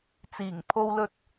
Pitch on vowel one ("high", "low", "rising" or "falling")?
low